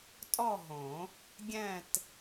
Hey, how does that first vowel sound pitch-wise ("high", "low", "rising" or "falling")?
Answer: falling